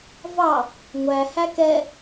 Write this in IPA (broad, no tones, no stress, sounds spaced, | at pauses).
v ɑ | ŋʷ æ h æ k ɛ